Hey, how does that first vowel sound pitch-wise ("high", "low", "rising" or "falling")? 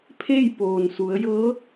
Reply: falling